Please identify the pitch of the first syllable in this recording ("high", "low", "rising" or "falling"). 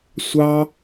high